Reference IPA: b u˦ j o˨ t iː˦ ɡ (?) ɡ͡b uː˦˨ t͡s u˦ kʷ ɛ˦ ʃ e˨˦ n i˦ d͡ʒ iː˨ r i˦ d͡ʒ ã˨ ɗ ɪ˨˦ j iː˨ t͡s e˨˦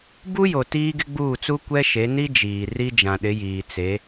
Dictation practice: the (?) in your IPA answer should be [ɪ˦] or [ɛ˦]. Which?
ɪ˦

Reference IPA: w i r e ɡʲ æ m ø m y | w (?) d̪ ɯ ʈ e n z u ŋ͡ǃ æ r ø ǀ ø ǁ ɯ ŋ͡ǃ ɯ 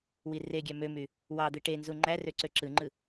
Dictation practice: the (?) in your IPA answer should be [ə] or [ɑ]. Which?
ɑ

